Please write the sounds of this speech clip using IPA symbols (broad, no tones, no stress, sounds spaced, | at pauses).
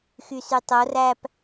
x y s y tˤ o r æ p